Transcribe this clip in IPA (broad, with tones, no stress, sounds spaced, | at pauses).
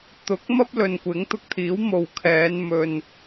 t̪ ʊ˨˥ k̚ m ɐ˥ p̚ l ɵ˨ n kʷ ɪ˨˥ ŋ t̪ ʊ˧ k̚ t̪ʰ iː˨˥ w m o˨ w kʰ ɛː˨˧ n m ɵ˨ n